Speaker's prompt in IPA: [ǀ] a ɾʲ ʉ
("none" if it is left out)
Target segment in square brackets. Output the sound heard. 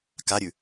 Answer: k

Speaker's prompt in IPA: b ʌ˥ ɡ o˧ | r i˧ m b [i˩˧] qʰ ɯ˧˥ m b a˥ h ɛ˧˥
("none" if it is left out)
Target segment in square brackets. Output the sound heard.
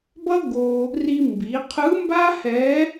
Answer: i˩˧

